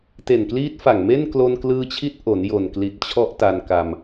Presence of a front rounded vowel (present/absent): absent